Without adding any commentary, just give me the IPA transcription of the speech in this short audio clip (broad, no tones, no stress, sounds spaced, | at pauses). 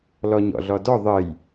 l ɔ ɲ ɔ̰ ɮ ɔ d ɔ ðˤ ə j